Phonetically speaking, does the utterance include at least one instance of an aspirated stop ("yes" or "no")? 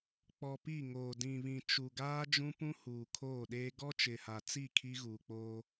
yes